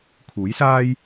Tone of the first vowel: rising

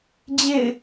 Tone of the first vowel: falling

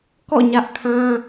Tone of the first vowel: falling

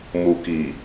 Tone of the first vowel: low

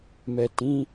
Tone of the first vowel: low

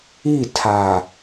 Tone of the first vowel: falling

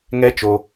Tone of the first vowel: high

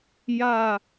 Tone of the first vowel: falling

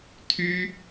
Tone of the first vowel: high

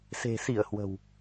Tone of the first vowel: low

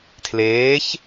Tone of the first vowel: rising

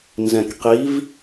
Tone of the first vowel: low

